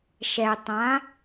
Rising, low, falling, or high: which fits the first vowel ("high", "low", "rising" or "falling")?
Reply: low